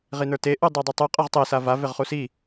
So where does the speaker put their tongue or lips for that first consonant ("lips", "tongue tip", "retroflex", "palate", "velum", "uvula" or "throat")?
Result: uvula